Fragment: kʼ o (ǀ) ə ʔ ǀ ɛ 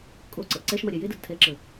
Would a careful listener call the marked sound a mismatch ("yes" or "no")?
no